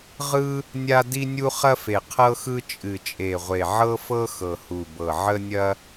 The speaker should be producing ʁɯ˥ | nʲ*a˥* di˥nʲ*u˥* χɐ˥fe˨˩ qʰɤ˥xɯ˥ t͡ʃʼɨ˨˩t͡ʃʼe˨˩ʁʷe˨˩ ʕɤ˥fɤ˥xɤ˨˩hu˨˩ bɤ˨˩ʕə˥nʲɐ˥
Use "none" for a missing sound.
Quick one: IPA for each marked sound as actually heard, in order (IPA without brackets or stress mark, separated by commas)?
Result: a˥, u˥